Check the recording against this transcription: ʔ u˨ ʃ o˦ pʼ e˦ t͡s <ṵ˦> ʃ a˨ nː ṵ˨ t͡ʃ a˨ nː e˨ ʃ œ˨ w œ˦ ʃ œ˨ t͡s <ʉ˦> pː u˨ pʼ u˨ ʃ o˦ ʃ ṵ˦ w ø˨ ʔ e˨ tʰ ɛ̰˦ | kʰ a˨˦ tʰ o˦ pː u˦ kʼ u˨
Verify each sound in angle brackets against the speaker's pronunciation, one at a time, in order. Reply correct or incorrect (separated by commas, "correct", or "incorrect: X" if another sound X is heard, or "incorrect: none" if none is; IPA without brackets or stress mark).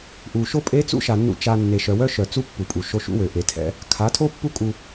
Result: correct, incorrect: u˦